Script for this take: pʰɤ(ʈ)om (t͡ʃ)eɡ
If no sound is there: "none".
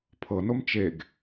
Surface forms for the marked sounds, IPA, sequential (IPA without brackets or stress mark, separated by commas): n, t͡ʃ